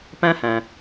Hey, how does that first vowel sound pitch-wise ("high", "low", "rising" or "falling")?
high